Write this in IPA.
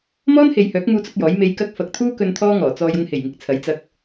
m ɔː˥ n h e˨ j h œː˨˥ k̚ m uː˥ t͡s ʊ˥ k̚ j ɔː˨˥ j m e˨˧ j k ɐ˧ k̚ f ɐ˨ k̚ t̪ʰ uː˥ k ɵ˧ n t̪ʰ ɔː˥ ŋ ɔː˨˩ t͡s ɔː˧ j ʊ˧ ŋ h e˨˩ j ŋ ɪ˨˥ k̚ t͡sʰ ɐ˨˥ j t͡s ɐ˧ k̚

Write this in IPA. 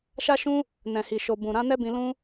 ʃ a˦ ʃ ũ˦ | n ɛ̃˨ h i˨ ʃ o˨ b ũ˨ ɾ ã˨˦ n ɛ˦ b ĩ˧ l ũ˦

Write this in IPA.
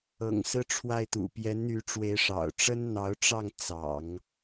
ɤ̰˨˩ ŋ s ɹ̩˥ ʈ͡ʂʰ w a˥˩ ɪ̯ t̪ ṵ˨˩ p j ɛ˧˥ n n̪ y˧˥ ʈ͡ʂ w e˧˥ ɪ̯ ʂ ɑ̰˨˩ ʊ̯ ʈ͡ʂ ə˥ n n̪ ɑ˧˥ ʊ̯ ʈ͡ʂ ɑ˥˩ ŋ t͡s ɑ̰˨˩˦ ŋ

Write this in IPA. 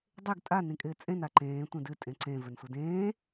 dˤ e ɡ tʼ a n ĩ kʼ ɪː t͡sʼ ẽ n a ǃ ẽː tʷ ẽ d ɨ tʼ ẽ ǀ ẽ v ɘ n sʷ ɘ d ẽː

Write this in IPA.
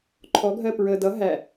ǃʰ ɔ ɡʱ ɜ p ɹ ə d ʌ ɦ æ

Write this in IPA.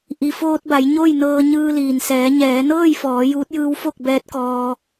ʔ i˩ f oː˧ t̚ b a˩˧ j ɲ o˥˨ j n ɤː˧ ɲ ɯː˧ l iː˩ n s ɛː˩˧ ɲ ɛː˩˧ n ɤː˥˨ j f ɔː˩˧ j uː˧˥ t̚ j ɯː˧˥ w f o˥˨ k̚ b ɛː˧˥ t̚ k ɔː˧

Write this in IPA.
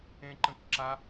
ẽ ǃ ə̃ k ǁ a

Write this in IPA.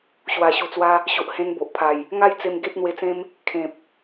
ɕ w a˨˩ ɕ u˨˩ t͡s w a˧ | ɕ o˨ ʔ h ẽ˧ n b o˨ ʔ pʰ a˨˩ j | ŋ a˥˧ j t͡s e˧ m ɡ e˦ t̚ n̪ w e˧ t͡s ẽ˦ m | kʰ ẽ˨ p̚

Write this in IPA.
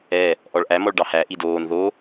ɛ | ʔ ɔ ɭ ʔ æ m ɔ ɭ ɖ ɑ h æ ʔ i d oː n ð o

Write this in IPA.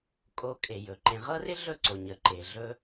kʼ o˨ kʼ e˩ j ɵ˩ ǃ ẽ˨ ʁ ɤ˥ r ɪ˥ ɮ ɵ˦ ǀ o˩ ɲ ə˩ ǃ e˩ ɮ ɵ˦

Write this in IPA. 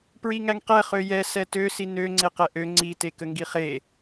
p ɹ i ŋ æ ŋ q ɛ χ ø j ɛ s ɛ t ø s i n ø ŋ͡ǀ e q ɛ ʔ ø ŋ͡ǀ i t e k ə ŋ ɡ i χ e

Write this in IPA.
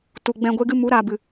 t u˨ ɡ͡b ɛ̃˧ ɡʷ e˦ ɡ ɨ˦ m u˨˦ ɾ aː˨ b ɨ˨

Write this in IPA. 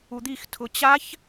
u d̪ i x tʰ ʊ t͡ɕ a ç

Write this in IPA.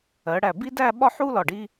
ɜ˩˧ ɽ æ˧˩ b i˥ d æ˥˧ ɓ ɒ˥˧ ħ u˥ l ɒ˧˩ ɖ i˥

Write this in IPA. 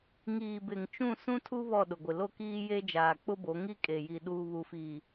ŋ iː˨ b ɪ˨ ŋ t͡ʃ ũ˦˨ s ũ˦ tʰ u˦ β ɔ˦˨ ɗ ʊ˨ ɡʷ ɪ˨ l o˦ k iː˦ j e˦ d͡ʒ aː˨ k͡p ʊ˦ b o˨˦ ŋ i˦ kʼ e˨ j i˨ ɗ uː˨ β u˨ f i˨

